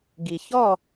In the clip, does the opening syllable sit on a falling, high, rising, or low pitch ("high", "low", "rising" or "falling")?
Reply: low